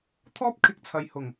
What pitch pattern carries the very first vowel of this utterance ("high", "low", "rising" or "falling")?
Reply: high